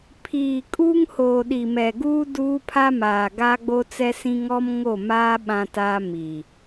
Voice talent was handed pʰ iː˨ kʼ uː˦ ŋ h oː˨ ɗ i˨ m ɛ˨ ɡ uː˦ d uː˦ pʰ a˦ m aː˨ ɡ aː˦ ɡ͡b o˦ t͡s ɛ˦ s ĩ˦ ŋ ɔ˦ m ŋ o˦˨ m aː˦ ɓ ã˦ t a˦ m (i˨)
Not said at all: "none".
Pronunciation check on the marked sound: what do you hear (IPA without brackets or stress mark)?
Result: i˨